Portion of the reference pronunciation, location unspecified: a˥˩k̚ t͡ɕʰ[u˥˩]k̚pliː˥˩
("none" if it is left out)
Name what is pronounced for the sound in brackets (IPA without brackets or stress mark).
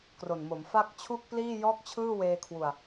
u˥˩